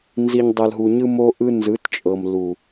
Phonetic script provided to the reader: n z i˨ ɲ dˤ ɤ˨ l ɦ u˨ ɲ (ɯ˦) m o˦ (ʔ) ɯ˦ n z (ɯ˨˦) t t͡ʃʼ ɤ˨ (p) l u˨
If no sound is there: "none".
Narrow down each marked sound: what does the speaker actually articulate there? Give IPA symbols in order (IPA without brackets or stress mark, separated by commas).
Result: ɯ˦, ʔ, ɯ˨˦, m